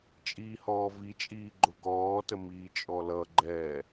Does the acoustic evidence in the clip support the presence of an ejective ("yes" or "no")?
yes